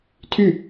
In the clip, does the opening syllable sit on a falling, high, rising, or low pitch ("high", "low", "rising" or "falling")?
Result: falling